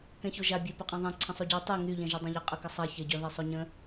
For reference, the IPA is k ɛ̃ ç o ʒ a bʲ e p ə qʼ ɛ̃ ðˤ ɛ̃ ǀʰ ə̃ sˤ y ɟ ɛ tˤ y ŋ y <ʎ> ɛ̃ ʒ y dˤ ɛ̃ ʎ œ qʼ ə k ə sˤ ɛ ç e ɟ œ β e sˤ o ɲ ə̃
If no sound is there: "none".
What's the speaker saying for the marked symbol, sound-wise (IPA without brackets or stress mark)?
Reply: ʎ